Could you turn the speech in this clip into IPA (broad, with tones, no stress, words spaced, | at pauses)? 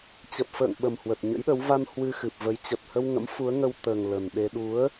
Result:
t͡ɕə˨˩p̚fə̰ː˧˨ŋɓə˨˩m hwə˨˩t̚ɲə̰˧˥jɗə˨˦w va˧n hwɨ˧xɨ˨˩p̚və˨˦j t͡ɕə˨˩t̚hə˧wŋə̰˧˥m fu˨˦ə̯ŋə˧wt̪əː˨˩ŋ lə˨˩nɗe˧ ɗu˨˦ə̯